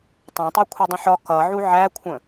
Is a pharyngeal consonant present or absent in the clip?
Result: present